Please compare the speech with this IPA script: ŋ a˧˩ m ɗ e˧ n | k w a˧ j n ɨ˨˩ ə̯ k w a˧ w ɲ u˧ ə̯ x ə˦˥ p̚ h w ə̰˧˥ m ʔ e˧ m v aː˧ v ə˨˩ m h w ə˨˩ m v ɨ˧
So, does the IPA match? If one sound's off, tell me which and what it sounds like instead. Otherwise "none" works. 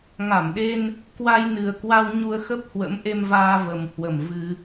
none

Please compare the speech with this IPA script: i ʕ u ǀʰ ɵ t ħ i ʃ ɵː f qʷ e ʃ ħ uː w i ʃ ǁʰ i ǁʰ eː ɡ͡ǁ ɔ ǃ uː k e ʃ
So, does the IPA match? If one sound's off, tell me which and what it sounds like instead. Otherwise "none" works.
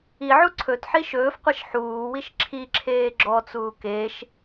ǃ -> t͡s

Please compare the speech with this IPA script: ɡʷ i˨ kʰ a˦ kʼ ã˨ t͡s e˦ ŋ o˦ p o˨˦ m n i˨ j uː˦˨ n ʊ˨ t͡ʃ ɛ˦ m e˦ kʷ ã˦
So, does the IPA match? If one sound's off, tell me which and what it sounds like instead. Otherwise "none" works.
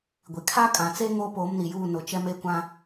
none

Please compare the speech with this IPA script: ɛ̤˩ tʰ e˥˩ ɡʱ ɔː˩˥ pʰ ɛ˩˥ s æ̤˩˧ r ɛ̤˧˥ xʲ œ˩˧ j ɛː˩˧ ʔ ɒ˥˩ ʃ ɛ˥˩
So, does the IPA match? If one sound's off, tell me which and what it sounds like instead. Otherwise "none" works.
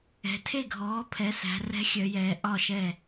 none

